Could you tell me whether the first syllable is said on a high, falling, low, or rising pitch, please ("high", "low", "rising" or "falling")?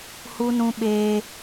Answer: high